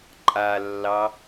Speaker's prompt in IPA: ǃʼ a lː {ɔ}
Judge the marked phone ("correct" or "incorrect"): incorrect